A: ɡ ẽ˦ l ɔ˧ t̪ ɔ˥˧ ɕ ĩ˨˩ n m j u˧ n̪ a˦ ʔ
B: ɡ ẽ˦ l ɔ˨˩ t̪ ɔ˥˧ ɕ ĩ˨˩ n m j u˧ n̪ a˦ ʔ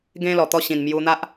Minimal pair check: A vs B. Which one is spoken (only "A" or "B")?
B